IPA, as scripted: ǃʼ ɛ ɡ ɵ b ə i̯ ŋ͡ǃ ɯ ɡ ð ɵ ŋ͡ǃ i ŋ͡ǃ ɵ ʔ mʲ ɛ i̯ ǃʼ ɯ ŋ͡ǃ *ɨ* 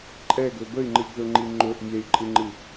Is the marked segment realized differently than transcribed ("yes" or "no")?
no